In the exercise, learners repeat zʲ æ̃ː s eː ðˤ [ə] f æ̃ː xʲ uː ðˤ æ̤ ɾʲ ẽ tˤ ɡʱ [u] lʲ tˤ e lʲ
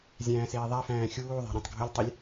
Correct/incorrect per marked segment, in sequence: incorrect: æ, incorrect: ʊ

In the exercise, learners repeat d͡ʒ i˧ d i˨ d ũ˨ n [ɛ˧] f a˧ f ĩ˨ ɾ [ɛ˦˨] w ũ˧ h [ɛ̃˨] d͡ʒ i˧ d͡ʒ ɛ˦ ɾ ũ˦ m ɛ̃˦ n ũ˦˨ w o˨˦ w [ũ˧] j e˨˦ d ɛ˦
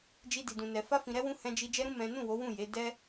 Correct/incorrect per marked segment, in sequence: incorrect: ɛ˨, incorrect: ɛ˧, incorrect: ɛ̃˧, incorrect: ũ˦˨

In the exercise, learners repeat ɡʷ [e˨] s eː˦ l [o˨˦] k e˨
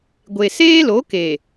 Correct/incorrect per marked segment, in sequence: correct, correct

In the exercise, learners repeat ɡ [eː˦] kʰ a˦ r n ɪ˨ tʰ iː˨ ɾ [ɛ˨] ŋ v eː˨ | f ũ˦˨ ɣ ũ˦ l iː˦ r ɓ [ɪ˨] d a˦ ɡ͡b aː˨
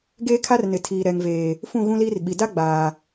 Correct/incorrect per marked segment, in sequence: correct, correct, incorrect: i˨

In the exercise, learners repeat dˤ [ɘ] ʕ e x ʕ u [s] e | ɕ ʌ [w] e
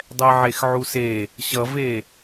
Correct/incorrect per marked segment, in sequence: incorrect: ɛ, correct, incorrect: v

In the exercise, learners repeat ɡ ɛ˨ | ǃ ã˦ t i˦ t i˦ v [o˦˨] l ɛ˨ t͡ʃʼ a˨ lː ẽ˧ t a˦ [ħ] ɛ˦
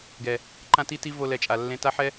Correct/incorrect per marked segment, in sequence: incorrect: o˧, correct

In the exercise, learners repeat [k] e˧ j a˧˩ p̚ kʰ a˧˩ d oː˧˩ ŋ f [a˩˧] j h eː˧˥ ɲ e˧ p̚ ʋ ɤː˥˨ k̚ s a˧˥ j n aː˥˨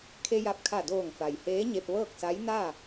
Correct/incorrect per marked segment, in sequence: incorrect: kʰ, incorrect: a˩

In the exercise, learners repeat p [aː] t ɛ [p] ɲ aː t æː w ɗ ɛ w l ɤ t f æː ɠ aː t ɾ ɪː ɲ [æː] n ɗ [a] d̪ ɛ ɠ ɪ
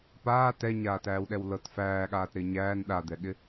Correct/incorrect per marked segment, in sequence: correct, incorrect: none, correct, correct

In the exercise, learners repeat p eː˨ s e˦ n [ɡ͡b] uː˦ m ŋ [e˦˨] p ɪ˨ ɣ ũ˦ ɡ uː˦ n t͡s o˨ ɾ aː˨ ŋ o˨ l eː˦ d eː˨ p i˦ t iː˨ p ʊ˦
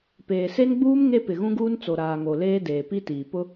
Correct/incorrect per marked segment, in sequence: correct, incorrect: e˦

